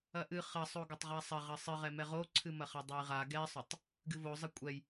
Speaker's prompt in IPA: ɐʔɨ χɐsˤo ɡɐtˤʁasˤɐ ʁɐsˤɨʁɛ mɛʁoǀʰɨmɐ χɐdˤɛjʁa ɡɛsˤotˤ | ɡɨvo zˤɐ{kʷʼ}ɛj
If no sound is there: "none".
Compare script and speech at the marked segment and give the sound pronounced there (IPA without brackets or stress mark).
kʷʼ